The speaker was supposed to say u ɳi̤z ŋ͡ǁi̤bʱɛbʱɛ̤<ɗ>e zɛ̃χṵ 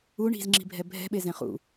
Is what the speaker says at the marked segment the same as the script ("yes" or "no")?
no